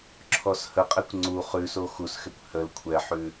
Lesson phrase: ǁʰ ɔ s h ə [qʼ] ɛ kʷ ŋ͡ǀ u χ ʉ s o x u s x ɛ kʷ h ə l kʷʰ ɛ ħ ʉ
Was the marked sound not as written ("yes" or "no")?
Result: no